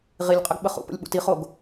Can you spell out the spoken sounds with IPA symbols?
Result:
ʁ i lʲ qʼ ə ɡ ɓ ə χ ṵ p ə̰ lʲ ɓ ṵ t i χ o ɡ

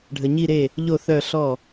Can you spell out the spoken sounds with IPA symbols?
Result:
ɖʱ ə˩ ɲ i˧˩ ɾ e˧˩ | ʎ o˧˩ θ œ˧˩ ɬ ɔ˧˩

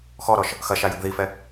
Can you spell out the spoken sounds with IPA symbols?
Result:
x ɔ ɾ ɔ ʃ | x ɐ ʃ a j ɐ ɡ ð i f ɛ

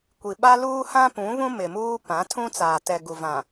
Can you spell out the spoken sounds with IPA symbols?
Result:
kʷ i˨ ɓ a˦ l uː˦ h ã˦ p ũ˨˦ β ũ˦ m ɪ˨ m uː˦ p ã˨˦ tʰ ũ˦ t͡s aː˨ t ɛ˨ ɡ u˨ v ã˨

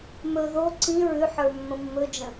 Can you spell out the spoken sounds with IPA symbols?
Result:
m ɵ ð o ǀ ĩ ɹ ʉ ħ ə˞ mː ə̃ mː ɵ d͡ʒ ə̃

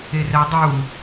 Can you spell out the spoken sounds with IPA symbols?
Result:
e r ɛ dˤ uː

